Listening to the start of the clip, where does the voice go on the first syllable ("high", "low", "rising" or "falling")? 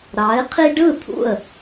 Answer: rising